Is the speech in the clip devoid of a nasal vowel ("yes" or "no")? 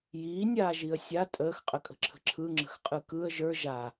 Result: yes